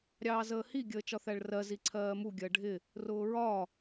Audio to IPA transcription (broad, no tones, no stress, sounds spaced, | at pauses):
ɾʲ ɑː z əː h i ɡʲ əː t͡ʃ ɒ θ æ ɭ r ɜ z i ǀʰ ɜː m u ɡʲ ɜ ɖʱ ɪ | r ʊː ɹ ɒ